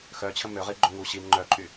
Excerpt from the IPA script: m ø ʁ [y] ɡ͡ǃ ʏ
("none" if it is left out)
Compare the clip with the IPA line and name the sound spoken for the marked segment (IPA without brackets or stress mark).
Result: i